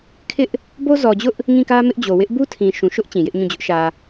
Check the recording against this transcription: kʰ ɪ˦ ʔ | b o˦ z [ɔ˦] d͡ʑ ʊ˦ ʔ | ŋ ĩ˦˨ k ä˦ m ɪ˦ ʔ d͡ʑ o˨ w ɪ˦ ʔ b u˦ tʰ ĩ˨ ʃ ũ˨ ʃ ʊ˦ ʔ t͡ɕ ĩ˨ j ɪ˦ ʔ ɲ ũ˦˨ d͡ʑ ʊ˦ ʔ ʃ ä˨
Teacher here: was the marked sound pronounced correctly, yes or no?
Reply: no